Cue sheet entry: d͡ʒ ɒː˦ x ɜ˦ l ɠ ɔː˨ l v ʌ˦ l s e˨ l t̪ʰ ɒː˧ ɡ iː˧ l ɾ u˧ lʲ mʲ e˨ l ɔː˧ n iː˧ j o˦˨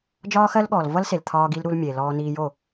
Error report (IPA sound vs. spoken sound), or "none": lʲ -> l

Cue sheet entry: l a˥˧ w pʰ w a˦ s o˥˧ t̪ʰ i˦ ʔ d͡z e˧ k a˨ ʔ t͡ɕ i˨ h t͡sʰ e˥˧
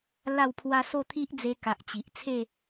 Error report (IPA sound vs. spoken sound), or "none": h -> ʔ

